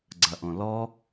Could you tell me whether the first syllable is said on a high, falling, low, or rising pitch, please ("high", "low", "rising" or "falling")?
low